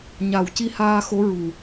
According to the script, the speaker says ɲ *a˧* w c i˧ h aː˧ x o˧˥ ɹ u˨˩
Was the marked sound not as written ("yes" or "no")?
yes